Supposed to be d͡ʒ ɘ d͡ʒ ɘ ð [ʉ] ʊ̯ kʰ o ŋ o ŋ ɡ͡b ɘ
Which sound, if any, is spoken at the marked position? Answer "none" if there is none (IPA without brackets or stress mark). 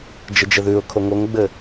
ʉ